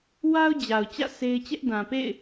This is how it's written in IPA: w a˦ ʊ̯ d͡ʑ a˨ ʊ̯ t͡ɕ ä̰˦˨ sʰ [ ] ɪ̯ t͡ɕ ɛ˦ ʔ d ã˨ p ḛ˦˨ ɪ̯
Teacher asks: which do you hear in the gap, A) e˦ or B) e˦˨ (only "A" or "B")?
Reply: A